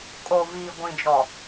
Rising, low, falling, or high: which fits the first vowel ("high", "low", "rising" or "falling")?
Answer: low